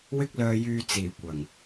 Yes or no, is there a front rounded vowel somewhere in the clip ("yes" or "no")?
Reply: yes